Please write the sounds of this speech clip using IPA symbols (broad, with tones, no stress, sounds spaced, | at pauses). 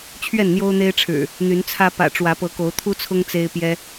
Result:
t͡ɕʰ ɥ ɛ˥˨ n n̪ j o˦ ʊ̯ n̪ e˦ ɪ̯ ʈ͡ʂʰ ɻ̩˨˩ | n̪ y˨˦ n t͡sʰ ä˦ p ä̰˨˩ ʈ͡ʂ w ä˨˦ p ɤ˨˦ k o˨˦ ʊ̯ t̪ʰ u˦ t͡sʰ ʊ˦ ŋ t͡s e˦ ɪ̯ p j ɛ˦